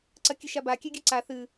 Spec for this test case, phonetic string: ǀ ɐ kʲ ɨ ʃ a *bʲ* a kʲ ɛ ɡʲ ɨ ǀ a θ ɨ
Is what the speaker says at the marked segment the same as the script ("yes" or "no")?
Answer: no